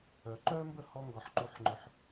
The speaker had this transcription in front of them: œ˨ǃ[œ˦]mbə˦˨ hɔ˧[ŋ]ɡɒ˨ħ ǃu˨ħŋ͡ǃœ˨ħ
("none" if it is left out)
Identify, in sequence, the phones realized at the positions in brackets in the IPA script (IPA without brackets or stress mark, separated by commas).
œ˦, ŋ